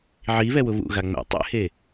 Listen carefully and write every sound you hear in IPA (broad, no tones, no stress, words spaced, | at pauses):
ʕiβɛwʊ βṵɣa ŋ͡mɛ̰ tˤɛ̰he